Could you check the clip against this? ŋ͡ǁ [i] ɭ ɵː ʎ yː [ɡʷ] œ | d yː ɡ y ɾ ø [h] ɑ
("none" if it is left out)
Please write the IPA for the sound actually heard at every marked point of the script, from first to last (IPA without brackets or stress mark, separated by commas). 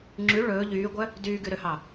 y, ɡʷ, h